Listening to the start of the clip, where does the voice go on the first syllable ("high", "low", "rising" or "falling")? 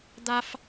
high